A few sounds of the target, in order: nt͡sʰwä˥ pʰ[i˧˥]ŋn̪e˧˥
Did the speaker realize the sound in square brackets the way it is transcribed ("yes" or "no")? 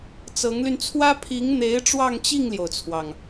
yes